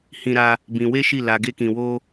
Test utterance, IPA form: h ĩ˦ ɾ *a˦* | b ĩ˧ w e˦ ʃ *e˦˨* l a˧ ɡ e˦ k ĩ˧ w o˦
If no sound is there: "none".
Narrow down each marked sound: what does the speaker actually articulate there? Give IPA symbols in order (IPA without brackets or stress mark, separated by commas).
a˦, i˦˨